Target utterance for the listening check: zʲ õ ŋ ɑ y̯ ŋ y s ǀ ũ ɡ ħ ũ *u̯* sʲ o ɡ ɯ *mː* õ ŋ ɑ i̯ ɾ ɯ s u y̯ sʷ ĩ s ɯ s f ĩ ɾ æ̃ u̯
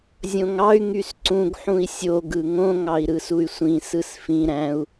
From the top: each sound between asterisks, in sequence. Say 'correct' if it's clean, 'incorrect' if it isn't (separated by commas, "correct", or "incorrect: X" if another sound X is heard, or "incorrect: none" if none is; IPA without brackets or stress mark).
incorrect: i̯, incorrect: ŋ